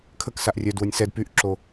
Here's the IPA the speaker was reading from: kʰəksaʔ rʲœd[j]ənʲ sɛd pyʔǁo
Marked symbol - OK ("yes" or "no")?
no